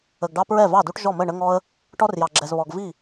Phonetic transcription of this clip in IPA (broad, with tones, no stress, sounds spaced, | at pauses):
ə˨ ɡ ɖ ɑ˦ p ɹ ɛ˥˩ v ɑ˥˩ d u˦ ʈ ʒ ɔ˥˩ m ə˥˩ ɳ ə˦ ŋ ɔ˦ ə̯ | ʈ ɔ˦ r j ɑ˨ ɡ͡ǁ ɛ˨ z β ɔ˨ ɡ v i˥˩